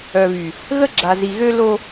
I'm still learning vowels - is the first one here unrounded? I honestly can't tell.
no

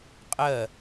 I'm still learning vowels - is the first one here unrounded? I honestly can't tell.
yes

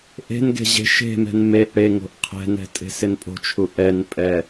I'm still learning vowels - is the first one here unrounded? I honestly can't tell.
yes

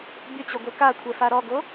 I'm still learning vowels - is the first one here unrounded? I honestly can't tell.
no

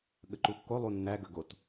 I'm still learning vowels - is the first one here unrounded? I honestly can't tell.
yes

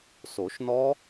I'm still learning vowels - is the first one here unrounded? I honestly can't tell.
no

